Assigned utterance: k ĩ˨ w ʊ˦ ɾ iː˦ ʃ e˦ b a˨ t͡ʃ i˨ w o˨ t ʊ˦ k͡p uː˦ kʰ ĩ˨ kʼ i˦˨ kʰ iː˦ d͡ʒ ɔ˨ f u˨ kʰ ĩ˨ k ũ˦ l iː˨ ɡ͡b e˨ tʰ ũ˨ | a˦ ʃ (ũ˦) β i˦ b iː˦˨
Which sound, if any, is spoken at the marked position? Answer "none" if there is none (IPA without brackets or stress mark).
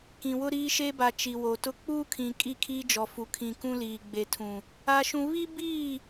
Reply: ũ˦